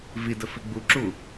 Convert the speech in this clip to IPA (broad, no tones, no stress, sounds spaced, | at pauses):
v i d ə f i ɡ͡b u ǁ u